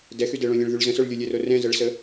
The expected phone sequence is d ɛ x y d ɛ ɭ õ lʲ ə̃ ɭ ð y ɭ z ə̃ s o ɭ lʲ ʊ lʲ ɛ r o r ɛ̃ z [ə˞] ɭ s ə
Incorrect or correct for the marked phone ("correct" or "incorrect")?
incorrect